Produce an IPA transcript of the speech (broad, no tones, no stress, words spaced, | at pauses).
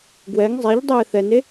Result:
ɡwɛŋ zˤɛʎ dˤeːθɛne